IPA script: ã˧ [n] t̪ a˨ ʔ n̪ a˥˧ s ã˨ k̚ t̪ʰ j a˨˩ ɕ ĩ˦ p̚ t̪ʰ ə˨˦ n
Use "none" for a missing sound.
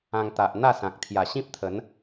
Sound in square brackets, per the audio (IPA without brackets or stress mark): ŋ